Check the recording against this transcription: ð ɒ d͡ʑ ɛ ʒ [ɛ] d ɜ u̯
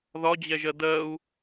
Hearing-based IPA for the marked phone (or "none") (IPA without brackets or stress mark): ɜ